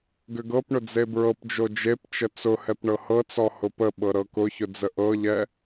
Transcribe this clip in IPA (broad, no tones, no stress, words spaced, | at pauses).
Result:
ɡʏɡɤpɳʊ d͡zebɹɤpd͡ʒo d͡ʒept͡ʃə t͡sʊhɛp ɳɤhɤt͡sɔ hʊpəɓɤ ɾɤkʊçʊ d͡zəʔɤʎɛ